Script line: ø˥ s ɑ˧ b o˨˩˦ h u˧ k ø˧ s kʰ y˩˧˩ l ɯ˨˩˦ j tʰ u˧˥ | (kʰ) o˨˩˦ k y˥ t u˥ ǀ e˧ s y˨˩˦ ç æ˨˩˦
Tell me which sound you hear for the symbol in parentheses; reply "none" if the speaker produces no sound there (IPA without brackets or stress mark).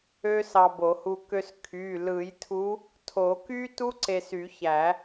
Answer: tʰ